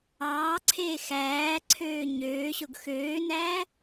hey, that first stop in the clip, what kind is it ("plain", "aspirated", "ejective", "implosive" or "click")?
click